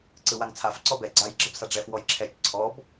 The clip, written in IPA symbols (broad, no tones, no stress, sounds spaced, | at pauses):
ǀ ɯ w a ŋ t͡sʰ a f ǀ ɔ b ɛ ɡ͡ǀ a j ɡ͡ǁ ɐ b s a ɖ͡ʐ ɛ f w ɔ j ǁʰ ɛ t͡ʃ ǀʰ ɔ b